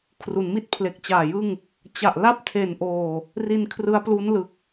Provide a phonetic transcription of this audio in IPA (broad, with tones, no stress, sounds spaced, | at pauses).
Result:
kʰ r u˩˦ n m i˥˩ t̚ pʰ l e˨˩ k̚ t͡ɕ aː˨˩ j ɯ˥˩ ŋ | t͡ɕ a˨˩ ʔ l a˥˩ p̚ tʰ e˨˩ n ʔ oː˨˩ | r i˧ n kʰ r ɯ˦˥ a̯ p l u˦˥ n l ɯ˨˩ k̚